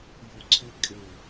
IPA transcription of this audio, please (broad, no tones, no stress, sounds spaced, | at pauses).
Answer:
j o ǀʰ ɪ kʼ ɪ